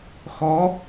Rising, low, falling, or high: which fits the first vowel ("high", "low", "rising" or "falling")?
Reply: rising